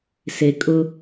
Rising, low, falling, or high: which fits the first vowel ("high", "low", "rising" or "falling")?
low